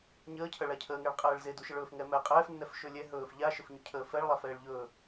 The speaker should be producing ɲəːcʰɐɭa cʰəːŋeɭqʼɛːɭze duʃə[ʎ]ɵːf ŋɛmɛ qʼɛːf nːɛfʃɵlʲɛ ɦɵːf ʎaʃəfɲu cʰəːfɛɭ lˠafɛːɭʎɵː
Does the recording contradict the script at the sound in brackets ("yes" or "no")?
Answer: yes